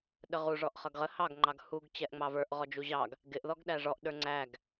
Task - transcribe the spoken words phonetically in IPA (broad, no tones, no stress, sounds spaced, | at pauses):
ɗ ə ʁ u ʐ ɔ ʔ χ ʌ ɡ ʁ ə h ɑ ɡ ŋ͡ǃ ɑ ɡ h u ɡ t͡ɕ ɛ ʔ ŋ͡m ɑ v ə˞ ʔ ʁ ɔ d͡ʒ u ʑ ɑ ɡ | ɡ ɪ ʔ ð ɔ ɡ ɗ æ ʐ ɔ ʔ ɗ ə˞ ŋ͡ǀ æ ɡ